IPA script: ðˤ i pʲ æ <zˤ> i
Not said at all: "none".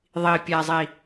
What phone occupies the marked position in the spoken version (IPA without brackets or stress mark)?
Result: zˤ